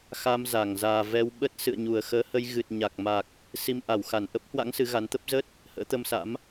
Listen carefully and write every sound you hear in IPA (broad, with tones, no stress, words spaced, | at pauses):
xa˧m za˧˩ŋzaː˨˩ vɛ˧wɓə˦˥t̚ sɨ̰˧˨ə̯ɲu˨˩ə̯xəː˨˦ hə˧jɣɨ˨˩t̚ ɲa˨˩k̚ma˨˩k̚ | si˧m ʔa˧˩wxa˧˩n ʔə˦˥p̚hwa̰˧˥ŋ sɨ˨˦ɣa˨˦nt̪ə˦˥p̚ zə˦˥t̚ | hə̰ː˧˥t̪ə˧msa̰˧˥m